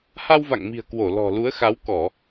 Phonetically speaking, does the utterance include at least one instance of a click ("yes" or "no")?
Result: no